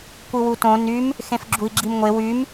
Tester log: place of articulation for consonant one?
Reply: velar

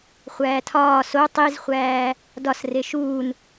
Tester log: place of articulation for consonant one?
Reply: uvular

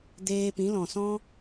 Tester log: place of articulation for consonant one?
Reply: alveolar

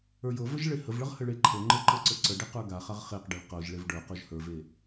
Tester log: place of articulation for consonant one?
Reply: palatal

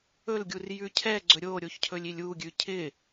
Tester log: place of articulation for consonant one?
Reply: alveolar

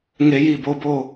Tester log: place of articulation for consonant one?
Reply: velar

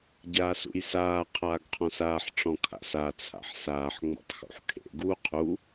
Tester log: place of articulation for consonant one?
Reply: palatal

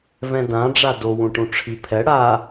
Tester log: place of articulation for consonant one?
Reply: labial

